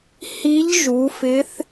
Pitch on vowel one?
rising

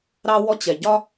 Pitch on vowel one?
high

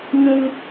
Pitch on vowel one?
high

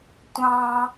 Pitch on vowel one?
high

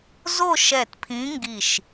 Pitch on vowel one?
falling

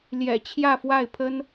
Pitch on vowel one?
low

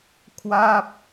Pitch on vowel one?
falling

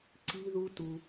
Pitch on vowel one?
high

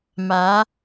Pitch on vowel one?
rising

